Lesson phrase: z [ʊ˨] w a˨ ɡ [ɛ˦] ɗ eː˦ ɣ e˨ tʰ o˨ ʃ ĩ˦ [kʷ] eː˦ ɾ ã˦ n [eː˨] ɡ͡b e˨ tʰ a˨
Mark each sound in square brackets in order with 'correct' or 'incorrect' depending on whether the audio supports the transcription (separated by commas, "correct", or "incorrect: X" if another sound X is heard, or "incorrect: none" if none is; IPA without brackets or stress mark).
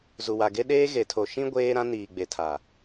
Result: incorrect: u˨, incorrect: e˦, incorrect: ɡʷ, incorrect: iː˨